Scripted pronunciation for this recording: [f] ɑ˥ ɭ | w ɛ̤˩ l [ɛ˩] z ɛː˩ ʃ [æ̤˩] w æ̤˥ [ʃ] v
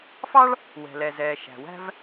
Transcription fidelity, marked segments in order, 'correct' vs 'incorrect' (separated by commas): correct, correct, correct, incorrect